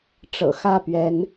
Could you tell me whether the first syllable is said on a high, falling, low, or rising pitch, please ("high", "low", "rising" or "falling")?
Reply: low